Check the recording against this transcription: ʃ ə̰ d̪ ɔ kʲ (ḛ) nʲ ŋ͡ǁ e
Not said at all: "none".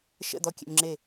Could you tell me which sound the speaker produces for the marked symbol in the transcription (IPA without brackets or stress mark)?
ḛ